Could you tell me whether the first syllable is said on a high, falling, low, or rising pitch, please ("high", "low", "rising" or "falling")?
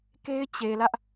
high